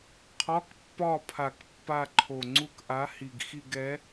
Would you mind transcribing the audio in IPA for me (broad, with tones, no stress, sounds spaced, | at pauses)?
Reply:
qʰ ɒ˧˥˧ k pː ɒ˦˨ pʰ a˨˩ k pː a˦˨ ǃʰ o˨˩ ŋ͡ǀ u˦˨ k ʔ a˨˥ h i˨˩ ɡ x i˦˨ ɡ ɛ˨˥